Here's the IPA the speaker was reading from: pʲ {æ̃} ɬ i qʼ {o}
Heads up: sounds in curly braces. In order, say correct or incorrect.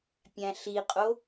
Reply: correct, correct

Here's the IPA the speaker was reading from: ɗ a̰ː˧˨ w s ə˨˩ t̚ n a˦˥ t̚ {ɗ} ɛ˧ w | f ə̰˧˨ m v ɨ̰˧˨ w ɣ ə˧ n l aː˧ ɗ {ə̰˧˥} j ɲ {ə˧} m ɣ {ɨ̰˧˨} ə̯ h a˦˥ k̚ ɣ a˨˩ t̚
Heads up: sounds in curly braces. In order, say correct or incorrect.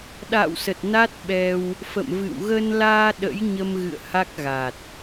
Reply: incorrect, correct, correct, correct

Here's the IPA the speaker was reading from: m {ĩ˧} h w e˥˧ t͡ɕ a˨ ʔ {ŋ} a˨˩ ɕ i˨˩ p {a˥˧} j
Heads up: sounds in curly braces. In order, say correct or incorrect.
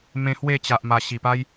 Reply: incorrect, incorrect, incorrect

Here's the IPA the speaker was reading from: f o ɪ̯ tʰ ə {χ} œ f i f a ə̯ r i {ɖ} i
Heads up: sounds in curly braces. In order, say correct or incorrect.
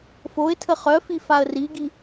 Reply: correct, incorrect

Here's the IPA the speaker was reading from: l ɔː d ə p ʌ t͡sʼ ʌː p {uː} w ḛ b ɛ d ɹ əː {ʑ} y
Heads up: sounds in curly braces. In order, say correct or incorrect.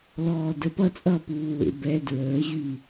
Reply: correct, correct

